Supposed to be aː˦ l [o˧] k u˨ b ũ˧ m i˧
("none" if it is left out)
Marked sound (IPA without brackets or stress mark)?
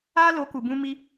o˨˦